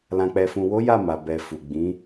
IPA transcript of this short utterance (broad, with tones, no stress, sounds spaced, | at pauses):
l ã˨ k͡p ɛ˨ f ũ˨ w o˨˦ j a˦˨ m a˨ b ɛ˨ f u˨ ɡ͡b ĩ˨˦